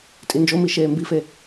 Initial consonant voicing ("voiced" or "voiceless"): voiceless